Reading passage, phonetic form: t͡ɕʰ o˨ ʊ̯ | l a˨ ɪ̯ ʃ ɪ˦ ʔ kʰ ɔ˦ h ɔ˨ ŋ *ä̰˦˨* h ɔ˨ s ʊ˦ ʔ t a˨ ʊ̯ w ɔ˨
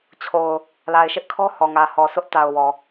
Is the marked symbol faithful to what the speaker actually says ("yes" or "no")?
no